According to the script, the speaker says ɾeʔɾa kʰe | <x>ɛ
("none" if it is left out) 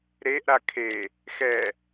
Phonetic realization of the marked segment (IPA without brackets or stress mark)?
x